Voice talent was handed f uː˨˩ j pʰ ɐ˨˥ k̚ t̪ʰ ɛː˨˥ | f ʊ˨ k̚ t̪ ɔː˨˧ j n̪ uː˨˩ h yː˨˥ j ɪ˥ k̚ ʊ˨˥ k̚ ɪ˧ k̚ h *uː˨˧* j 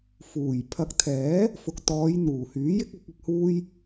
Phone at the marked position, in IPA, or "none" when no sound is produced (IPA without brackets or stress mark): uː˥